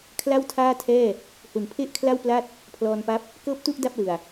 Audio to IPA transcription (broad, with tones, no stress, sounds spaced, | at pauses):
kʰ l a˥˩ w tʰ aː˥˩ tʰ ɛː˥˩ | h u˨˩ n pʰ e˥˩ ʔ kʰ l a˥˩ w p l a˥˩ t̚ | pʰ l ɔː˧ n p a˦˥ p̚ | k ɤː˥˩ p̚ t u˥˩ ʔ d a˥˩ p̚ l ɯ˨˩ a̯